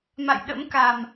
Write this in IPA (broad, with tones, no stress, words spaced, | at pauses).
ma̰˧˨j ɗə̰˧˥mka˨˩m